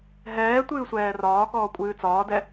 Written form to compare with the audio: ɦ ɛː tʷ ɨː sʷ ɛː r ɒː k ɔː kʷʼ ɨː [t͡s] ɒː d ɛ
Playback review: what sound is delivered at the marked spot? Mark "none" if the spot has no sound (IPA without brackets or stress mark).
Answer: t͡s